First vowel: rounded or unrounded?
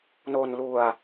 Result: rounded